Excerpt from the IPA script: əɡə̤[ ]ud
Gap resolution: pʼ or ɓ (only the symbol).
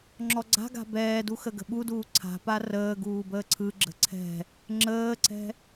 ɓ